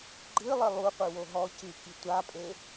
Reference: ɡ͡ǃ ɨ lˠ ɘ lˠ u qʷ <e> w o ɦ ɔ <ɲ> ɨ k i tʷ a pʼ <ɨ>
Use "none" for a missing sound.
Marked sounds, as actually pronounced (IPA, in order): ɨ, c, e

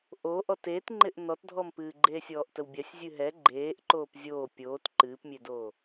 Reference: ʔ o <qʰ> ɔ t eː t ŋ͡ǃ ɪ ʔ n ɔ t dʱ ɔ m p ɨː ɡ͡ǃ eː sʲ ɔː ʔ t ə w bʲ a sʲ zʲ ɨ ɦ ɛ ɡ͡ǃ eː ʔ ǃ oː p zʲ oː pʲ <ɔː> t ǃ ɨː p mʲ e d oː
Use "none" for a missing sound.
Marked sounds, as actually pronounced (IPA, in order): ʔ, oː

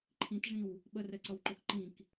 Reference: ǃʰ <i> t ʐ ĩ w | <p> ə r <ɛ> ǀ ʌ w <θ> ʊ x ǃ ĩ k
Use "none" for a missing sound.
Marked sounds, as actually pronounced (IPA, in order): ĩ, ɓ, ɛ, ǃ

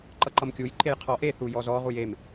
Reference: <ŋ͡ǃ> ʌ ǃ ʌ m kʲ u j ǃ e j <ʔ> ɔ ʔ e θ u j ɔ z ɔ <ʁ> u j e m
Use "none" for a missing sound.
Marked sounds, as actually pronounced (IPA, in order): ǃ, qʰ, ʁ

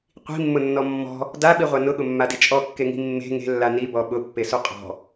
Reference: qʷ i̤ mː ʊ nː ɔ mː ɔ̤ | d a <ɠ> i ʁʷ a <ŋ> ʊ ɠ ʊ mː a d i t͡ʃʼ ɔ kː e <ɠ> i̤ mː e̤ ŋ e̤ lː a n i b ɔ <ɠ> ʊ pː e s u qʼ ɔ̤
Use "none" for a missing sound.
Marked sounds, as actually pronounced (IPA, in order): ɓ, n, ŋ, ɓ

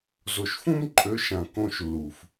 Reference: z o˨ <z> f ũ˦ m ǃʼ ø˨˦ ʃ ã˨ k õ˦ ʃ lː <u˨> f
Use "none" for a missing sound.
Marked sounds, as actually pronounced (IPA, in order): ʃ, u˨

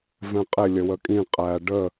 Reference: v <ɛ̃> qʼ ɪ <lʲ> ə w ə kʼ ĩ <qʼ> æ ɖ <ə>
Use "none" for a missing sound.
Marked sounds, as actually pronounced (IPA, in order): ɛ̃, lʲ, qʼ, ə

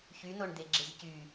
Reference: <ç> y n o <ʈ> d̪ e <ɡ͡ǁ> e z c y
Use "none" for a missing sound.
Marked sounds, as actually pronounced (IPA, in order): ç, ɳ, ɡ͡ǁ

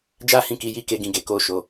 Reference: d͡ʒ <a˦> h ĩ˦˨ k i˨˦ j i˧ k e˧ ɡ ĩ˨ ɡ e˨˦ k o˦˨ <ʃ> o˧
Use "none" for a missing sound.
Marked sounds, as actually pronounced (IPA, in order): a˦, ʃ

